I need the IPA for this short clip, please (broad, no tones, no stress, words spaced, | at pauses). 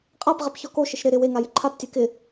qʼapʁɪp çɔkoʃɪʃ ɾɪ ɾɪ we ŋajɪǃʰaptʲɛ kɪ